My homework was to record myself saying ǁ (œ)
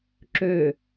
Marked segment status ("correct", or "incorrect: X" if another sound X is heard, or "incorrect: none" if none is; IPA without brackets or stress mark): incorrect: ø